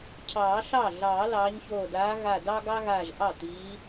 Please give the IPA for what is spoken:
cʰɑː˨˩˦ɬɑ˥˩ ɮɑː˨˩˦lɑː˨˦ɲçoː˧˩ daː˨˦ɣa˧˩dɑ˥ ɡɑ˥ɣaː˧˩ʒʔɑ˥˩ t̪i˨˦

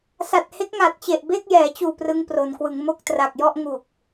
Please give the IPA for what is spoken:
sa˨˩t̚he˦˥k̚ŋa˨˩t̚t͡ɕe˨˩ʔ be˥˩k̚jɛː˩˦t͡ɕuː˨˩ prɯ˦˥ŋpro˩˦nkwɯ˩˦ŋ mo˥˩k̚tra˨˩k̚ jɔ˥˩ʔŋu˨˩k̚

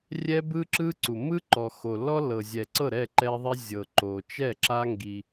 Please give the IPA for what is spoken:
rʲɛ˦bɯ˦ ǁɯ˦ǀu˨ mɯ˦ǃɔ˨ xo˨ lɔ˦ lɤ˨zʲɛ˨ǀɤ˦˨ ɾɛ˦˨ǃɛ˦ðˤɛ˦ zʲɤ˨ǃo˨t͡ʃɛ˦˨ ǁa˦ ŋɡi˦

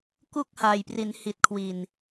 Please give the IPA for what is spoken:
ku˥˩k̚ha˨˩jpri˩˦nhi˨˩t̚ kʰwi˨˩n

